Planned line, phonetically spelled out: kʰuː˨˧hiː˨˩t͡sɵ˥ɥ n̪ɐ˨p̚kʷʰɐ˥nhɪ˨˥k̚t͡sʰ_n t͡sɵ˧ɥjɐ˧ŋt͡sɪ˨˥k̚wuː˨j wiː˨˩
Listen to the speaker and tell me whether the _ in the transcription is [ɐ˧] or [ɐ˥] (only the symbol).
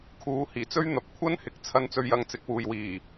ɐ˧